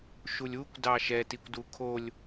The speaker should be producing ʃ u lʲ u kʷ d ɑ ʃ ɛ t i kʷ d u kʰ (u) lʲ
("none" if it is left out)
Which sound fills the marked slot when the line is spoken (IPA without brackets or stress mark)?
o